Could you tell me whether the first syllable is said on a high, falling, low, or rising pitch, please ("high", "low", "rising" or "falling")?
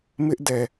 high